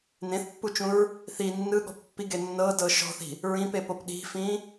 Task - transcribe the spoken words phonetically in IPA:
nẽθpːut͡ʃũɹ | θi nːɯɠɔ̤ pːiɡe nːɤdɤ ʃɔ̤θi̤ | ɹĩpepop ɗi̤fĩ

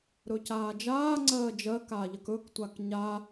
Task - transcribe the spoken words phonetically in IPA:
ɾɵcaːd͡ʒaː ŋ͡ǀɜːd͡ʒɜ kaʎəkɵk tʷakɲa

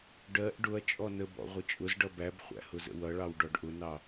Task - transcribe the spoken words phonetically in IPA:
ɖɜʔ ɖʊɐ̯ t͡ʃʼɔnəbɔ̰ ʁʷət͡ʃʼʊzɖʌ bæbχʷæ̰ hʊzə̰wʌɭɑw ɖɔɖʔʊnɑ

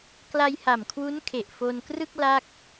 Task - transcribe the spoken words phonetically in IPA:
kla˧jha˨˩mkʰwu˦˥n kʰe˨˩ʔ fo˧nkrɯ˥˩k̚ la˥˩k̚

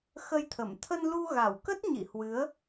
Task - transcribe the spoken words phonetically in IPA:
xə˧jt̪ʰə˧˩m t̪ʰə˧nlu˧ɣa˧˩wkə˦˥t̚ ɲḭ˧˨hwɨ˨˦ə̯

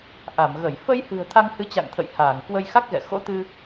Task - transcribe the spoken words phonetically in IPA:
ʔa˧˩mɣə˧˩j fə˧jhɨ̤˨˩ə̯ t̪ʰa˧ŋhɨ˨˦t͡ɕa̰˧˨ŋ t̪ʰə̰˧˨jhaː˧˩ŋ kwə˧jxa˦˥k̚ɣɛ̰˧˨ xo̰˧˥t̪ɨ˧

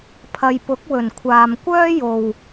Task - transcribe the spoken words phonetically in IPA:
pʰɐ˨jpʊ˨˥k̚wɵ˨˩nkʷʰaː˨m kʷœː˥jo˨w

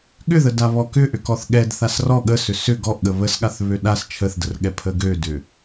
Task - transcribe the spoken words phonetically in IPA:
ɠʏðə daβɔkʏ ʔʏkɔθɠɛd θasrɔ ɠəsʏ sʏ ɡɔʔɠə βəsɠaθ βøɗas t͡ʃʰəθdərɠɛ pʰəɡødʏ

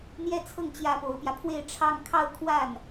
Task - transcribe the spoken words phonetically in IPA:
n̪jɛ˥˧t͡sʰɤ˥˩ŋ t͡ɕjä˥po˧˥ʊ̯pjä˧ pʰwe˥˧ɪ̯ʈ͡ʂʰɑ˥˧ŋ kʰɑ˥˧ʊ̯ kʰwa˥˩n

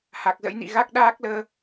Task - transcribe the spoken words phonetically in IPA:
ha˨˩k̚zə̰˧˥jnḭ˧˨ɣa˦˥k̚ ɗaː˦˥k̚ləː˧

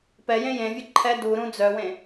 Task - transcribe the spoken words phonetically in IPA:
pɛjẽ jẽvʲʊ ǃʰɛ duɾũ d͡zœwẽ

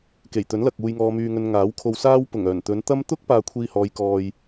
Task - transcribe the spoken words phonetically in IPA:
ke˨˩jt̪ɵ˨˥nlɐ˨k̚ uː˨jŋɔː˨myː˨ŋɵ˨n ŋaː˨˥wkʰo˧wsaː˥w pʊ˨˩ŋ œː˨˩nt̪ɵ˨˧nt̪ɐ˥m t̪ʊ˥k̚ paː˧kʷʰiː˧hɔː˨˧j kɔː˨j

